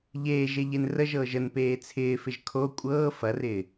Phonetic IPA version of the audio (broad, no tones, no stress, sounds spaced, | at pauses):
ʎ eː ʒ e ʎ e n r ə ʒ ɤː ʒ ə n p eː t͡sʰ ɪː f ɪ ʒ kʰ o kʷʼ ɤː f ɐ r ɪː